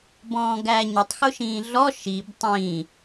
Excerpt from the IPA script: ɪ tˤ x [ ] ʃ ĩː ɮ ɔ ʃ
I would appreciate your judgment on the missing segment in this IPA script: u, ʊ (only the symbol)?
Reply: ʊ